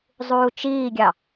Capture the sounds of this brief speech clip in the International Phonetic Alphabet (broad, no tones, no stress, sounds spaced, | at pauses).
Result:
zˤ uː t͡ʃ iː ɡʲ ɑ